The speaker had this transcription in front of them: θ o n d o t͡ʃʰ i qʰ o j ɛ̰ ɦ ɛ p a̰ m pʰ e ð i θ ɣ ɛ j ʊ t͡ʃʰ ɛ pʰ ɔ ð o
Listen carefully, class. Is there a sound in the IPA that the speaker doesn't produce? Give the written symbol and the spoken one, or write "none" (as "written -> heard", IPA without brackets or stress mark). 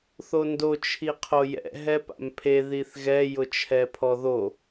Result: none